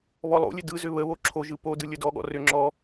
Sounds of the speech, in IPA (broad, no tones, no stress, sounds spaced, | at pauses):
β ɔ lˠ o̰ lʲ ɘ d ɯ z ʏ β ə β o ǁʰ o ʒ ɯ p o d ɯ lʲ ə d ɔ ɠ ɔ̰ r ʏ ŋ͡ǁ ɔ